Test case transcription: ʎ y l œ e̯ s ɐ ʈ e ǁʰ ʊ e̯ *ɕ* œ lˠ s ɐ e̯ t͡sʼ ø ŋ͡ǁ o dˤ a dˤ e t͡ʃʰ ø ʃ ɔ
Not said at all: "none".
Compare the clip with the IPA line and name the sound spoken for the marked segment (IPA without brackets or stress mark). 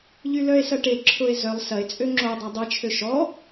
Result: z